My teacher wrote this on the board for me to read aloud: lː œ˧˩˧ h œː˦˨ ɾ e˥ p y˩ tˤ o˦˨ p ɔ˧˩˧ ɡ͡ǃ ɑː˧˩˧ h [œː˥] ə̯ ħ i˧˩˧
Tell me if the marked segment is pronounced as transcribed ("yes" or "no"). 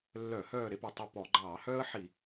yes